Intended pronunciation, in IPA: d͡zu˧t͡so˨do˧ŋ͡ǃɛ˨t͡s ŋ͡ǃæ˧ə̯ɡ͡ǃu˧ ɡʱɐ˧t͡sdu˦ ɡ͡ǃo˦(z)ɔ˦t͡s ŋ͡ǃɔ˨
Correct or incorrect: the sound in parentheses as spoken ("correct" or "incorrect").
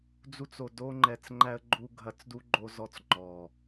correct